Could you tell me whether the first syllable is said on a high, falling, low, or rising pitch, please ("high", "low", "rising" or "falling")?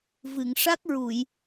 low